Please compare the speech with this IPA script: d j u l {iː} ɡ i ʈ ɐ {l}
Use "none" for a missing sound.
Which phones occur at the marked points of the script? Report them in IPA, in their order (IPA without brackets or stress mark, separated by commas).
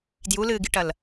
ɨː, l